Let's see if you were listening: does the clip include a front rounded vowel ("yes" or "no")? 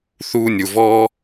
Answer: no